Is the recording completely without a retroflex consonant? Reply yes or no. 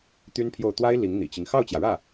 no